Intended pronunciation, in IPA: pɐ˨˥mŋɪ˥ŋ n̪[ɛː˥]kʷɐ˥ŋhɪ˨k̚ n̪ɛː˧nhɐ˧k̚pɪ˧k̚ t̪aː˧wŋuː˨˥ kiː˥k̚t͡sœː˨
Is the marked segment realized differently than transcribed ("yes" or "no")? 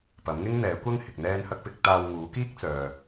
yes